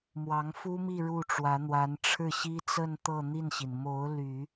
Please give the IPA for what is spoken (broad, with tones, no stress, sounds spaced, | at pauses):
m w ɑ˧˥ ŋ f u˥ m i˥˧ ɻ u˥˩ ʈ͡ʂ w ä˧˥ n̪ w a˧˥ n ʈ͡ʂʰ ɻ̩˥˩ ɕ i˥ t͡s ə˥˧ n t̪ ɤ˥˧ n̪ i˥˩ n ɕ i˩ n m o˧˥ ʊ̯ l y˨˩˦